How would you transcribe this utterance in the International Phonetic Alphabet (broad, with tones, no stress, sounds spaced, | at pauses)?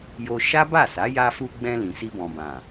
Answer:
j o˧ ʃ a˦ b a˦˨ s a˨˦ j a˧ f u˧ ɡ͡b ɛ̃˧ l ĩ˨ s i˧ b ɔ̃˨ b ã˨